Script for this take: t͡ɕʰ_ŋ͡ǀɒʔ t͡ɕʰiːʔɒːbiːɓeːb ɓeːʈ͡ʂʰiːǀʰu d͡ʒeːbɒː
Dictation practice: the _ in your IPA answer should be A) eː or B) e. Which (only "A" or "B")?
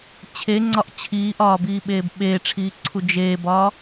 B